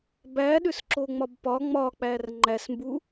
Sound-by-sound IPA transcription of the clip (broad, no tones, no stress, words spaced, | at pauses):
bæɗʏs ǁoŋ͡mɒbpɒ ŋ͡mɒk͡pær ŋ͡ǃæsmbu